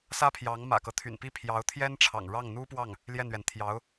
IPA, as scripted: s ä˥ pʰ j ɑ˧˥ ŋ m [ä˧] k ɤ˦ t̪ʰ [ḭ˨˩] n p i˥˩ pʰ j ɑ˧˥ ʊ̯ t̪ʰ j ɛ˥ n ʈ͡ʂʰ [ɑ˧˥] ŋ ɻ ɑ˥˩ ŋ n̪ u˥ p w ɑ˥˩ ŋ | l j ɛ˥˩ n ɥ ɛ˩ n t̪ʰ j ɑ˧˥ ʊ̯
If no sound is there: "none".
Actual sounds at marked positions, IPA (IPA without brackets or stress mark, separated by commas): ä̰˨˩, y̰˨˩, ɑ̰˨˩